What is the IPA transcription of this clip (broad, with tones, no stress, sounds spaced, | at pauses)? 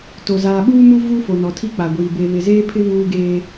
t o˨ z aː˨ ɓ uː˦ m u˦ v u˦ f o˨ n ɔ˨ tʰ i˦ k͡p a˨ ɡʷ iː˨ b e˨ β ɪ˨ z eː˦ pʰ ɪ˦ β uː˦ ɡ eː˦